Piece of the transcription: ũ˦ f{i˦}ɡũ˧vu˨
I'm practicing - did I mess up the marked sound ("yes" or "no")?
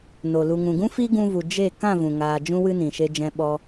no